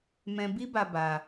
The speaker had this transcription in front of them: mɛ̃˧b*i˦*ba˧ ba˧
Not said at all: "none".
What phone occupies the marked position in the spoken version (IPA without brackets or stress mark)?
i˦